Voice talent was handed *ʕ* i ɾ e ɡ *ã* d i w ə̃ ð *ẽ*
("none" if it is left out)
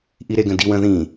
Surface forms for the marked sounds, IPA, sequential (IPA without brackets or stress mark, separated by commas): ʔ, ə̃, ĩ